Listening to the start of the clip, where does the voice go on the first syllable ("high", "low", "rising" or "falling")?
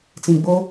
low